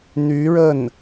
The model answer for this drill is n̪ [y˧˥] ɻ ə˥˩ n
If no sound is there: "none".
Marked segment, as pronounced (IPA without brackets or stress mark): y˧˥